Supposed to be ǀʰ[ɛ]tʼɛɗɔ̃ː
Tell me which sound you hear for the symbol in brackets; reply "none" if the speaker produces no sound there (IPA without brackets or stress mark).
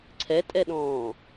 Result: ɛ